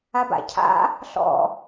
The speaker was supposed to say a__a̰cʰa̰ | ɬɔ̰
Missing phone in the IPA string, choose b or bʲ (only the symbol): b